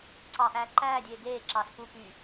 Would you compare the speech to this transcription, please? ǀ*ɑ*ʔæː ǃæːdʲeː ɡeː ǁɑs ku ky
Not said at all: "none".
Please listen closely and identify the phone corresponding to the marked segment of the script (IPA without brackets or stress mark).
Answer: ɑ